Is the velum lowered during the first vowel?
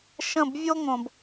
yes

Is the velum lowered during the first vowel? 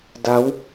no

